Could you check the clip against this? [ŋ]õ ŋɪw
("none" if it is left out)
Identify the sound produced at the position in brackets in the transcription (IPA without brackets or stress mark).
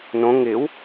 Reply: n